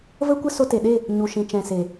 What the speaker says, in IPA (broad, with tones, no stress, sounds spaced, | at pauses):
v ə˦ kʷ ə˦ s o˧ t e˨ ɗ e˦˨ | ɲ u˨ ʃ ĩ˨ t͡ʃ ɛ̃˨ s e˨